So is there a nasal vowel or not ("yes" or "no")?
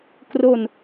no